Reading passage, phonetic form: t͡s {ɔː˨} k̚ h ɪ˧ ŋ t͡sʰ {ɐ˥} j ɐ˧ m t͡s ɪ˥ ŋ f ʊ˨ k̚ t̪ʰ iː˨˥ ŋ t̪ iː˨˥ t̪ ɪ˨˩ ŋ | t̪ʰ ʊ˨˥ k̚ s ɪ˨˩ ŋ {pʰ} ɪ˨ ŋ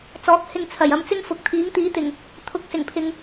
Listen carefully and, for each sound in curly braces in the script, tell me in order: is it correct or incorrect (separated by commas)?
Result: incorrect, incorrect, correct